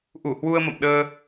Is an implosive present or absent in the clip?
present